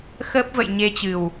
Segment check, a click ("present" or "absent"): absent